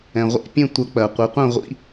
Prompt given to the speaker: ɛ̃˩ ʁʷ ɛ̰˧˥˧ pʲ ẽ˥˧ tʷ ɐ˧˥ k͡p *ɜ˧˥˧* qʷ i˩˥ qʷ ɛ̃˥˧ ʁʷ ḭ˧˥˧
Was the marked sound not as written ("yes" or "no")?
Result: yes